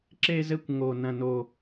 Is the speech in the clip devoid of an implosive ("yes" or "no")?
yes